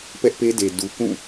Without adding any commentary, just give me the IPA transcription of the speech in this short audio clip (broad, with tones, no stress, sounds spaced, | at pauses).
p ɛ˦ ʔ p e˦ d e˨ d u˨ k ũ˦˨